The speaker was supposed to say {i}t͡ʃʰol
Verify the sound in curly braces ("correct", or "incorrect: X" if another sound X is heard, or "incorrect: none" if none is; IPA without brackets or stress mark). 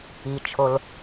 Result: correct